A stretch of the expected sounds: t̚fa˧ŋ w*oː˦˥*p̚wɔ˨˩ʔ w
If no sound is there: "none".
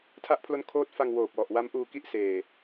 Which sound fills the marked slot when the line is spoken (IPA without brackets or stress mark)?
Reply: oː˨˩